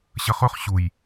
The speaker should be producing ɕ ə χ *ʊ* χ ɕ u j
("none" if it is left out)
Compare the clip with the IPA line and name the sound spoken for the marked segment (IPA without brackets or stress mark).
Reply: ʊ